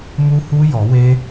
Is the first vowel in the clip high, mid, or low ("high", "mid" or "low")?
high